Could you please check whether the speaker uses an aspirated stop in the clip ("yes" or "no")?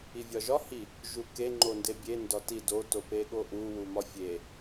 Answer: no